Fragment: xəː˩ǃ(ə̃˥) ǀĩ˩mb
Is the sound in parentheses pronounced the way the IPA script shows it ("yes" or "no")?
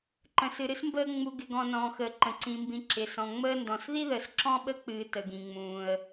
no